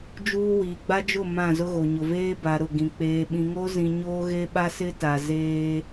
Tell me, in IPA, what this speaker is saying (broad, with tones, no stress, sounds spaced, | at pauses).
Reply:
d͡ʒ uː˦ w iː˨ ɡ͡b a˦ d͡ʒ ʊ˦˨ m ã˦˨ z ʊ˦ ɣ o˨ ɲ ʊ˨ v eː˦ b a˨ ɾ ʊ˦˨ ɡ ĩ˨ k͡p eː˨ ɓ ĩ˨ ŋ o˦ z ĩ˨ ɲ oː˦ ɣ e˦ ɓ a˦ s ɪ˦ t a˨ z eː˦